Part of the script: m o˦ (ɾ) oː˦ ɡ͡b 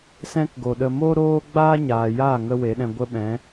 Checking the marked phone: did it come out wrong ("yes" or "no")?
no